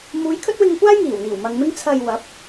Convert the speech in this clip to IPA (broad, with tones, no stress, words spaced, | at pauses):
muː˨˧jkʰɵ˥t̚wɪ˧ŋkʷaː˥j ŋiː˨˩wn̪iː˨˩w mɐ˨ŋmɪ˥ŋ t͡sʰɐ˧j wɐ˨˥p̚